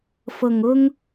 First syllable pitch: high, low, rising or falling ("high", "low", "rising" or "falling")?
low